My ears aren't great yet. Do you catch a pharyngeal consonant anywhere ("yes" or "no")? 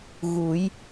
no